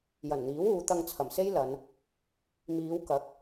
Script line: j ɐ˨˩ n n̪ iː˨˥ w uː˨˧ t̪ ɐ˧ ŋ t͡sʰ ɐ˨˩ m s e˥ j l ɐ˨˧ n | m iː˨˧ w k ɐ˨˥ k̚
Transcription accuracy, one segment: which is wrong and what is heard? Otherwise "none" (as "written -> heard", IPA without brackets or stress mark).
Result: none